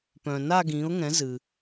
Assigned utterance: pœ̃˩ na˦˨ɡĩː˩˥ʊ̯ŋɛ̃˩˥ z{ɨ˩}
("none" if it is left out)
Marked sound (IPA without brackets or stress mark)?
ɨ˩